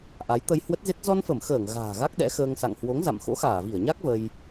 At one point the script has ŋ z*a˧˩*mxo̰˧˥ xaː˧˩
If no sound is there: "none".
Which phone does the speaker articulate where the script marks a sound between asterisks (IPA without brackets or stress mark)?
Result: a̰˧˨